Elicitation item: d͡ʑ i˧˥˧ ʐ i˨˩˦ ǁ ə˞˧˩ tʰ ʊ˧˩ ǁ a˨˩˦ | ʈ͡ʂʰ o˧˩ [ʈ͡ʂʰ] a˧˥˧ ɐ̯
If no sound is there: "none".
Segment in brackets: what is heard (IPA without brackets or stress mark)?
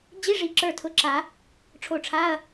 ʈ͡ʂʰ